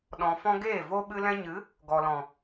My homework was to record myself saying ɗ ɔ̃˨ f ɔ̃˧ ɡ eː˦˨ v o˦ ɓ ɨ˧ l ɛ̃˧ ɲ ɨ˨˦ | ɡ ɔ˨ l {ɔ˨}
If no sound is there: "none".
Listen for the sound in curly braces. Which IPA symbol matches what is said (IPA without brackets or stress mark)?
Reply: ɔ̃˨